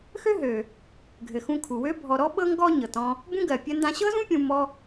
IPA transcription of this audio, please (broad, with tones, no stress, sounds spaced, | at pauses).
x ø˥ ɦ ø˩ | ɡʱ ɘ˩ x ũ˧ kʰ u˩ w ø˥ bʱ ɔ˧ ɾ ɔ˥ ɓ ɤ˥ ŋ ɡ ɔ˥ ɲ ɤ˩ t ɔ̃˧ | b ũ˥ ɡ ɜ˩ pʲ ɜ˧ n d ã˧ ɕ ɤ˥ z ũ˥ pʲ ũ˧ m ɔ˧